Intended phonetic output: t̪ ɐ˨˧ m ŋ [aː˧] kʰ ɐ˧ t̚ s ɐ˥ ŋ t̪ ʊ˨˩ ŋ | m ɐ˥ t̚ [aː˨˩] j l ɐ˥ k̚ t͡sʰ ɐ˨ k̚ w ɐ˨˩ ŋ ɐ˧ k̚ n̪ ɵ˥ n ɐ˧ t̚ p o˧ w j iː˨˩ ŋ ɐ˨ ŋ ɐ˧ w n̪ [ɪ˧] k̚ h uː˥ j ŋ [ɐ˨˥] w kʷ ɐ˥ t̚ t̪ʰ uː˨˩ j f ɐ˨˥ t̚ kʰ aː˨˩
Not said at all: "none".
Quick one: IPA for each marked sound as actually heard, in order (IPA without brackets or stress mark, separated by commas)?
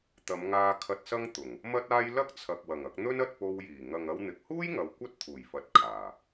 aː˧, aː˥, ɪ˨, ɐ˨